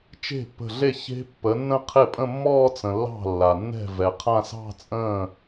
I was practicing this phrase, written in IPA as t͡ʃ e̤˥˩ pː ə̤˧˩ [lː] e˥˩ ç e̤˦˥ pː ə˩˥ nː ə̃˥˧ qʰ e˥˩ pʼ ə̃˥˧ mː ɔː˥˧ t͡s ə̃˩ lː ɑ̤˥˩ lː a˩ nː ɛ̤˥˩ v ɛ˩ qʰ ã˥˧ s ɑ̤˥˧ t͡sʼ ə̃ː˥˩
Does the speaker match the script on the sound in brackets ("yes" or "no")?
no